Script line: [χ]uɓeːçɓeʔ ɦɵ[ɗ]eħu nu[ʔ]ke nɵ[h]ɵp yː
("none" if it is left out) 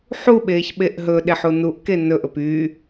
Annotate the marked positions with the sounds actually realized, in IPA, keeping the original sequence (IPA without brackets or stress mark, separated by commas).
ħ, ɗ, ʔ, ʔ